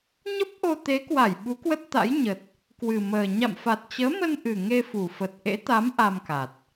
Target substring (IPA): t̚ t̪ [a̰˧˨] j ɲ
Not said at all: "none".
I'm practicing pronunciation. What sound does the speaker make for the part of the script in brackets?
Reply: a̰˧˥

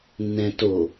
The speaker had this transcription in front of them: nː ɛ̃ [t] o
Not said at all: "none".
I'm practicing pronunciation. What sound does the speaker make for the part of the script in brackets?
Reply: t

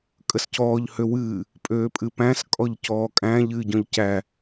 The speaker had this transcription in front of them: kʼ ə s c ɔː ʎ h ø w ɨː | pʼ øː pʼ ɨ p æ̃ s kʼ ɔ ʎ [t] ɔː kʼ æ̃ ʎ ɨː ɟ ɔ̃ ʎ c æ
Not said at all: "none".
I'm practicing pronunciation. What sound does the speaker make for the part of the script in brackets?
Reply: c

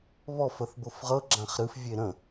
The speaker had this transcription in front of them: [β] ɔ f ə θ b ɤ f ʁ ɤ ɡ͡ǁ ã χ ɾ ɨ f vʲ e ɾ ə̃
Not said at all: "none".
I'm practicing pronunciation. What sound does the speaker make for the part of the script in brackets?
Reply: β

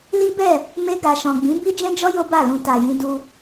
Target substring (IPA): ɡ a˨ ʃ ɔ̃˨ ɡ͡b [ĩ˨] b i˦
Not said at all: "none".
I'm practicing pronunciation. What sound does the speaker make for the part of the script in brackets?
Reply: ĩ˨˦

